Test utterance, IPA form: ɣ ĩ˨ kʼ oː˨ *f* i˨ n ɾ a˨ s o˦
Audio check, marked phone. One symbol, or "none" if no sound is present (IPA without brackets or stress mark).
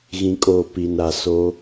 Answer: p